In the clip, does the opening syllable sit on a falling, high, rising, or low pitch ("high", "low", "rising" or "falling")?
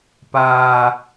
high